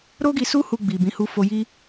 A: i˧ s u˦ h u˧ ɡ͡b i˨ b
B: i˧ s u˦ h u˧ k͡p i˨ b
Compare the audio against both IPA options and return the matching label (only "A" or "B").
A